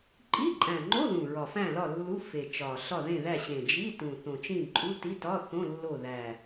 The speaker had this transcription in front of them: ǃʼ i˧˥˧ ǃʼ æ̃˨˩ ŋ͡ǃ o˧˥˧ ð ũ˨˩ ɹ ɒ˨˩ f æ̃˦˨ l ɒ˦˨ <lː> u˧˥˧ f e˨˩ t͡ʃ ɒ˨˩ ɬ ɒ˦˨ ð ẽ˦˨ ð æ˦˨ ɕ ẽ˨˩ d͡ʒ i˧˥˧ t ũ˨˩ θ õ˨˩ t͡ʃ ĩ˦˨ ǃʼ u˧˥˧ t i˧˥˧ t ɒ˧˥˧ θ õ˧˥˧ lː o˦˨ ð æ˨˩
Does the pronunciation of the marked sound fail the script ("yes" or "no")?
no